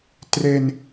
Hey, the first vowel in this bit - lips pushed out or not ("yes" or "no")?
no